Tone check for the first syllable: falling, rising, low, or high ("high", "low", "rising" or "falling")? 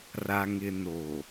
low